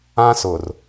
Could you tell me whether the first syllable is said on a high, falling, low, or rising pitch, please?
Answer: high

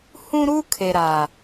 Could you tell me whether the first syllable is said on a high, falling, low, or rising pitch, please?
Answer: high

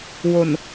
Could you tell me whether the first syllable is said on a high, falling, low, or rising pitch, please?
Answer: low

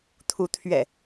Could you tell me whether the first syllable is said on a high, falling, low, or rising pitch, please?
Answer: rising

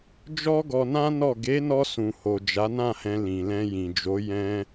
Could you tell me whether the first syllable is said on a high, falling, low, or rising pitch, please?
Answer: high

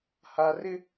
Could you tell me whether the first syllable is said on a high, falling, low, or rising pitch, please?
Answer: high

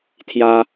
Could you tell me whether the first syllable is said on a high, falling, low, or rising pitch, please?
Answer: high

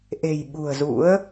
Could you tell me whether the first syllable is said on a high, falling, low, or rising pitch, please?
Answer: low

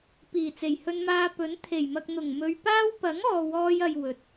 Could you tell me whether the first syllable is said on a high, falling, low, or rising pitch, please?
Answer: low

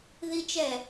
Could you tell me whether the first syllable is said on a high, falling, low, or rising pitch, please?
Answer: high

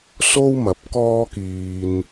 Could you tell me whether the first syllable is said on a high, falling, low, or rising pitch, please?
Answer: high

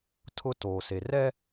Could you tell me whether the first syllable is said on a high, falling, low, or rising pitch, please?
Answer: high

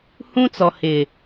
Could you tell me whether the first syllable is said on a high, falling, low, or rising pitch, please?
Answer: high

